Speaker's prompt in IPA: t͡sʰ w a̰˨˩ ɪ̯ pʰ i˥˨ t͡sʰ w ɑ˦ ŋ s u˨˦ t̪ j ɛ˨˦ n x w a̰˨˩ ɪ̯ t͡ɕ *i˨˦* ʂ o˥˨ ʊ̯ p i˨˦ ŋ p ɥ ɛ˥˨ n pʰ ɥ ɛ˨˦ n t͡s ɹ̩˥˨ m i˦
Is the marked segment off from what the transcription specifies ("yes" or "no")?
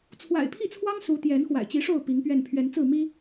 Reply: no